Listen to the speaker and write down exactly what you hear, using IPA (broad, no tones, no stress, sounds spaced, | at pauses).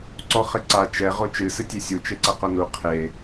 ǀ ɔ χ ɘ ǀ a t͡ʃ ɛ ʁ o t͡ʃ ɨ s ɨ tʲ e sʲ u t͡ʃ e ǀ ɐ q o n u qʰ e